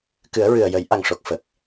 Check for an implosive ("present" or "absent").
absent